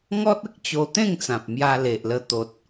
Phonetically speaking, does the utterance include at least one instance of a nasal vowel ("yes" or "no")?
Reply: yes